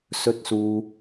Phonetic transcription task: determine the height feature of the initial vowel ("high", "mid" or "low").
mid